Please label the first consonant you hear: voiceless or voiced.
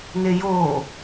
voiced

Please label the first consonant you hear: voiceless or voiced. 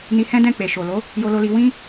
voiced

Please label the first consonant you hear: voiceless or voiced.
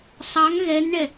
voiceless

